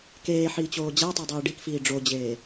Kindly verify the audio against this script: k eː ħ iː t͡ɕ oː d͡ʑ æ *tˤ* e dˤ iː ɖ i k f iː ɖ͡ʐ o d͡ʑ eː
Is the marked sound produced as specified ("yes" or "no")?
yes